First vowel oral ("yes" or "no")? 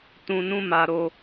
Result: no